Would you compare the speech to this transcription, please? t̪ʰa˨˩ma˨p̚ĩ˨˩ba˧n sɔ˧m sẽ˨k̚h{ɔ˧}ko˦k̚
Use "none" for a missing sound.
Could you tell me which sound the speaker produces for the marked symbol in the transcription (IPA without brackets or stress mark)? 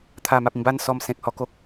ɔ˧